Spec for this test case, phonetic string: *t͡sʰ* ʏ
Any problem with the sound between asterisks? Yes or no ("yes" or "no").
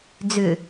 yes